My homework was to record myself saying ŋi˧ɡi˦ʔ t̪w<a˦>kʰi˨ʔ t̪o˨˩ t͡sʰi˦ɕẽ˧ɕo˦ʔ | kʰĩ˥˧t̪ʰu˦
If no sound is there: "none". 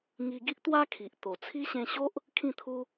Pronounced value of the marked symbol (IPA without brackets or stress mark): a˦